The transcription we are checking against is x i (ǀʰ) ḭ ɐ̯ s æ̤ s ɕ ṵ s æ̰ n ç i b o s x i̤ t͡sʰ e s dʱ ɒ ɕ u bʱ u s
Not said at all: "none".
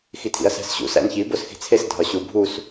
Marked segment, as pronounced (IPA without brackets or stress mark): tʰ